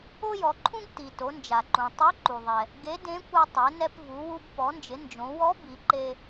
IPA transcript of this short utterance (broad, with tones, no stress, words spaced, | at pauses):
o˥jɔ˩˧ǃʰũ˥ɡ ti˩ to˩˧nd͡ʒa˩ǃũ˩ tˤe˧˥ǃu˩ðˤɛ˩ | ɡe˧˥dẽ˧˥ kʷa˧tˤe˩˧nɛ˧p vu˩˧wu˧b pɔ˩˧nd͡ʒɪ˩˧ nd͡ʒõ˩˧wɔ˧˥ bi˩˧ǃe˧